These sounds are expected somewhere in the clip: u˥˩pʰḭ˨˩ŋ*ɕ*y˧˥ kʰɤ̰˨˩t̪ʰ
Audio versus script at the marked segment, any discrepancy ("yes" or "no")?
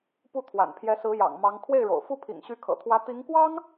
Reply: no